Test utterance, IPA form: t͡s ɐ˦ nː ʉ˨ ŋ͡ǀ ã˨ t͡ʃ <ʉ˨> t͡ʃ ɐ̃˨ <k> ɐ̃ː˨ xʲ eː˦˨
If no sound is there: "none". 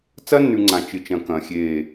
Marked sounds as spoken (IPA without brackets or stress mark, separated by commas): ɨ˨, k